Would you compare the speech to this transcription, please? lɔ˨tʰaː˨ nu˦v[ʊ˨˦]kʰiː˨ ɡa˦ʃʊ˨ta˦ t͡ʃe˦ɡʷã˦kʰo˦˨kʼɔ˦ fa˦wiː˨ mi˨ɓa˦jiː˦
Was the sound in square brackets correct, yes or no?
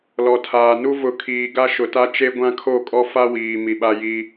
yes